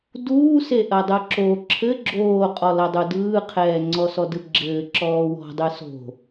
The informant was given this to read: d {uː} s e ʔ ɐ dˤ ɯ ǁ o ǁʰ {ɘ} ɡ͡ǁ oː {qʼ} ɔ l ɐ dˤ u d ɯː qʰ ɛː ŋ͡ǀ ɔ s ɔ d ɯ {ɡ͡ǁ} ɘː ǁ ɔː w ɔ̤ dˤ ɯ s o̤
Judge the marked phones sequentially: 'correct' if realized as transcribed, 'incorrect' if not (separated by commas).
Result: correct, correct, correct, correct